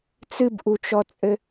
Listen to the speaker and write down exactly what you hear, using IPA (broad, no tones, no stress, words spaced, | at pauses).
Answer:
t͡sɨbʔut͡ʃɔt͡sʼɘ